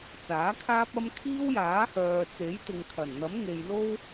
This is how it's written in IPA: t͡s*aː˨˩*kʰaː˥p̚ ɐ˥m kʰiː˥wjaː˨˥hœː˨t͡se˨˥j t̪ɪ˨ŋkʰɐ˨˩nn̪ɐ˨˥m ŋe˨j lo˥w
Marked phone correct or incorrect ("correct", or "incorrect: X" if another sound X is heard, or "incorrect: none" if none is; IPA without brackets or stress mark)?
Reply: incorrect: aː˨˥